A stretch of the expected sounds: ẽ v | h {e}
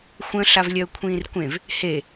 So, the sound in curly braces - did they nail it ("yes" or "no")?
yes